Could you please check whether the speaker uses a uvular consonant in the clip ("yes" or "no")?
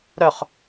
yes